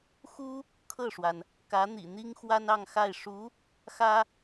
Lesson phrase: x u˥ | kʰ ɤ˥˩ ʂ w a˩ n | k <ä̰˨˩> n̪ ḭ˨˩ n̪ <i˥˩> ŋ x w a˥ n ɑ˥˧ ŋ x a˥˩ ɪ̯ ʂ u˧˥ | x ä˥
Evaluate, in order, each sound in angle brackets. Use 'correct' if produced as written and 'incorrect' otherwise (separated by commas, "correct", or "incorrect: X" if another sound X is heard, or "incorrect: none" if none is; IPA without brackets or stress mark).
incorrect: ä˧˥, incorrect: i˥